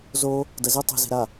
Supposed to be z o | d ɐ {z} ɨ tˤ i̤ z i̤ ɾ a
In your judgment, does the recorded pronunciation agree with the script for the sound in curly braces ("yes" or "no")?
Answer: yes